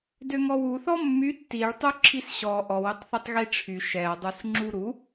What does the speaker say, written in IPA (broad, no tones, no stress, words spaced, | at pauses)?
døŋɔwuθɔ mːy tːiɭtˤu ǁʰisɕɔ ʔɔwøtˤθytˤ ɣiʈ͡ʂʰy ʃɛɐ̯dˤus ŋ͡ǁuɾu